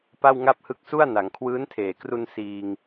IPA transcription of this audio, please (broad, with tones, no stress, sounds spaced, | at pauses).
p a˥˩ w ŋ a˥˩ p̚ h ɯ˦˥ k̚ s u˥˩ a̯ n a˩˦ ŋ kʰ w ɯː˦˥ n tʰ eː˨˩ k r u˧ n s iː˧ ŋ